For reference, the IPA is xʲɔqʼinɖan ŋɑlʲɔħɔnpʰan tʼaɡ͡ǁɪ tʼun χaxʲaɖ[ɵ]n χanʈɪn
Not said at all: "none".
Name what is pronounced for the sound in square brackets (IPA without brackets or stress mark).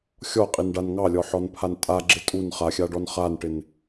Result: ɔ